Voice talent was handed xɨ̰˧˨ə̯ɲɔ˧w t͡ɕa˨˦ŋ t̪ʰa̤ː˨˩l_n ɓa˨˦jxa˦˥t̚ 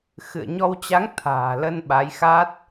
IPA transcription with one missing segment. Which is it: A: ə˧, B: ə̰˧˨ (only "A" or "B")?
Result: A